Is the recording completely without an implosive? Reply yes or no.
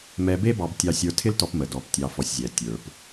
yes